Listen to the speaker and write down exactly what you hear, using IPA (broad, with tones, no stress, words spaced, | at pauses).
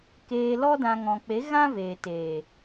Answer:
keː˧lɔ˦dã˧ ŋɔ̃˨k͡pe˨˦ ɣã˦veː˨ teː˨